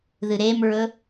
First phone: ð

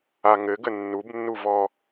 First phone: a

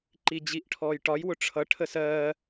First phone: ǃ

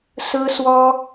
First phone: s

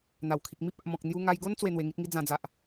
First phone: n̪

